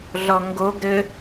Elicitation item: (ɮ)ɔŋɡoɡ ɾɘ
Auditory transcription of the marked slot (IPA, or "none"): ɮ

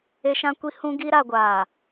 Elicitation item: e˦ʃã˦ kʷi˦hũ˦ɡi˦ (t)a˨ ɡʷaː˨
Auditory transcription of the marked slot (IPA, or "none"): ɾ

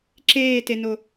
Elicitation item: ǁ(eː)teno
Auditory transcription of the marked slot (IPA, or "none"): eː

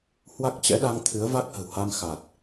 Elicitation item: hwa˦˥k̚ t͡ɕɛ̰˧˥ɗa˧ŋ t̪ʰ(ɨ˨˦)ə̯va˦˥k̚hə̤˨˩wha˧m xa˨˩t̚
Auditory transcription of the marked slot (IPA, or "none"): ɨ˨˦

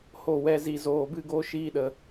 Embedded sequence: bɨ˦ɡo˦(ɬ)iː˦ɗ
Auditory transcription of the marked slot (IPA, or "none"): ʃ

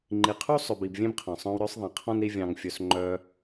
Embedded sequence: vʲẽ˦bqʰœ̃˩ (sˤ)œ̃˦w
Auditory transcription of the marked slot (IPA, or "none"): sˤ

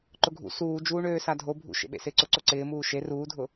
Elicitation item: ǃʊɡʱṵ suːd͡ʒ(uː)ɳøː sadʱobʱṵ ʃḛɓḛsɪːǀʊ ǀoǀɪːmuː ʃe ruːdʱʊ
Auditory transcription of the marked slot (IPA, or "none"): uː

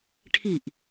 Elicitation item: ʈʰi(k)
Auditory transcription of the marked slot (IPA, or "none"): ʔ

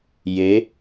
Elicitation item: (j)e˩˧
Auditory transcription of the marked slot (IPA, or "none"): j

